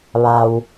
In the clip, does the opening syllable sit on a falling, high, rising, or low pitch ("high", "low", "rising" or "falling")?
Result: low